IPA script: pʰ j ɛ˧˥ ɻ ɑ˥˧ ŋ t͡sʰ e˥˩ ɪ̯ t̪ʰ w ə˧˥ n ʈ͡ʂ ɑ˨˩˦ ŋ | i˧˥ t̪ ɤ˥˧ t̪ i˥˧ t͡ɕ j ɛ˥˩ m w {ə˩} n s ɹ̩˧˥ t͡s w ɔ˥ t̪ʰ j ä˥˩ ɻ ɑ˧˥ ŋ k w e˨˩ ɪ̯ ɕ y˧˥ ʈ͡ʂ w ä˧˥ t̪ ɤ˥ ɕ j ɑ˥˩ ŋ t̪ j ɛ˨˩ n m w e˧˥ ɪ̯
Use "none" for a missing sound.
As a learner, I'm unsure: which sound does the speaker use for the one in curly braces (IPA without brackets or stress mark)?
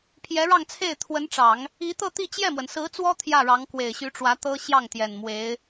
ə˩